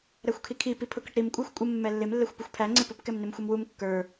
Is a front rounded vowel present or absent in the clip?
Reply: absent